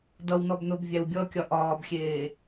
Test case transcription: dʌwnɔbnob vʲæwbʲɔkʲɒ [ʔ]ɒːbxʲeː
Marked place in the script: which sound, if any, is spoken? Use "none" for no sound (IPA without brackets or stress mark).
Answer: ʔ